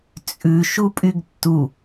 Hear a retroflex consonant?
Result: no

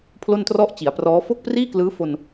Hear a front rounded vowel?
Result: no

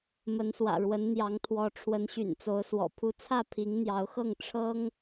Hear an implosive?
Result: no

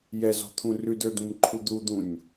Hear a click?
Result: yes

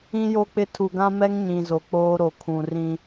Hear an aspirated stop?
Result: yes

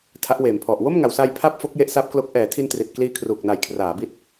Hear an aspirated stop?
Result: yes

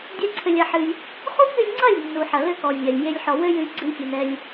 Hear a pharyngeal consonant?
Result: yes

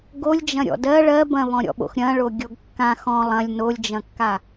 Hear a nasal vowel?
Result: yes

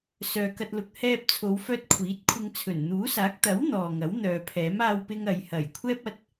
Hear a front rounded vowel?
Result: yes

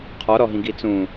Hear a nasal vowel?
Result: yes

